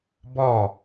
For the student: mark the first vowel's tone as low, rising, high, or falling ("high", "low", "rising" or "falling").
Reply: falling